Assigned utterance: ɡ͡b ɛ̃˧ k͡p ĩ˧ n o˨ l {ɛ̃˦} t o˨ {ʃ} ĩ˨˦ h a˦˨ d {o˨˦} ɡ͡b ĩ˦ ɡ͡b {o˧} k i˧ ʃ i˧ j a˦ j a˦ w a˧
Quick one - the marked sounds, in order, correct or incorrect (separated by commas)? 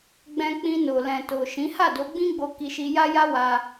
incorrect, correct, correct, correct